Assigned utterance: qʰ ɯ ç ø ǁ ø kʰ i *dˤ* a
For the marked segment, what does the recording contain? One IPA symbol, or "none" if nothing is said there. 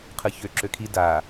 d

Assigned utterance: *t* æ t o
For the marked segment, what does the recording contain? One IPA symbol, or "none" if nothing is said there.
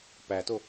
p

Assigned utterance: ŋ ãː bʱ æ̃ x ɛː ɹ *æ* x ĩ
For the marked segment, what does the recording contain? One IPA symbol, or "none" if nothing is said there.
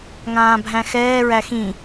æ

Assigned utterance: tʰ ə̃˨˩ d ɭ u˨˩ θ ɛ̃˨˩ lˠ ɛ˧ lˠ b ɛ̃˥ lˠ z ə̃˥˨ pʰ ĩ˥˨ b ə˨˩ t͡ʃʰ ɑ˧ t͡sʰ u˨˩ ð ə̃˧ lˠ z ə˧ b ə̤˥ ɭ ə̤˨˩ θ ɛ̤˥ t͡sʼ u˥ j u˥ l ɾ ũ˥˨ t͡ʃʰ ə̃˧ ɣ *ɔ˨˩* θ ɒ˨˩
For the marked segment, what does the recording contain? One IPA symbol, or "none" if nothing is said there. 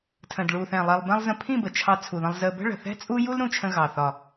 ɑ˨˩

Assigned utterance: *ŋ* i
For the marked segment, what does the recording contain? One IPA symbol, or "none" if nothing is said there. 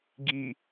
ɡ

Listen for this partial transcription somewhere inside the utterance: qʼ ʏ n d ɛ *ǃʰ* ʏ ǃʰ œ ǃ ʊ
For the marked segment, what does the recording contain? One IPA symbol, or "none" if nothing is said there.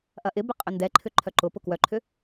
ǃʰ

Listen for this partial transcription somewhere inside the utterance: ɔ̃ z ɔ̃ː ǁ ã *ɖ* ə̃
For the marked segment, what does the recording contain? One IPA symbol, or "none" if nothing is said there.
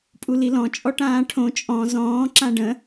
ɖ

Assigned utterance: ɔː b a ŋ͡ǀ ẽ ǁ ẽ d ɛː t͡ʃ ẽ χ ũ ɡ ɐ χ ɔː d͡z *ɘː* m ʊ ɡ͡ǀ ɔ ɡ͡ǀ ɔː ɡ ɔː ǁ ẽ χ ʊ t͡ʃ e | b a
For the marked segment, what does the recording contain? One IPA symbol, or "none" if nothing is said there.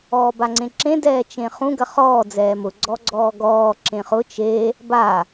ɛː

